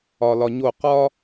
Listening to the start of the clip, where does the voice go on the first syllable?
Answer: low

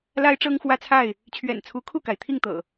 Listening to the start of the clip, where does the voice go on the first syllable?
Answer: high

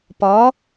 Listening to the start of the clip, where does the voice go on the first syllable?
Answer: rising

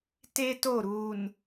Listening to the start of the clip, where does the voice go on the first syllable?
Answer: high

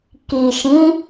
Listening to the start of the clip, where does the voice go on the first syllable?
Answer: low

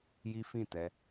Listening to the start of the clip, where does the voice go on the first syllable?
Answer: high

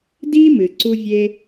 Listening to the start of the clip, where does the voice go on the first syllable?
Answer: high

